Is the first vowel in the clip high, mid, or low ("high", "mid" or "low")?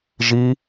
high